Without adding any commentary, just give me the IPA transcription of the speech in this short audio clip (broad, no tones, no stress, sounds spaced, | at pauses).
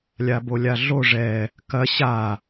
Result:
lʲ a b o lʲ a ɮ o ʐ ɛ | k ɐ ɕ a